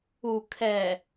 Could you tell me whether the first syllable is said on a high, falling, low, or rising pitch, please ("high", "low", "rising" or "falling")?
low